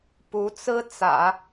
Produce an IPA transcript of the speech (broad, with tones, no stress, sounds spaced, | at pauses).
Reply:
p u˧˥ t͡s ɹ̩˥ t͡s ä̰˨˩˦